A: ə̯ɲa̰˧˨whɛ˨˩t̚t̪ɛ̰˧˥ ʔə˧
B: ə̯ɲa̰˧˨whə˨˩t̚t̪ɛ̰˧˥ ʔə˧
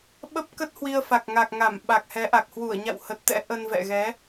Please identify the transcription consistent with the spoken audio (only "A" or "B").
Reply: B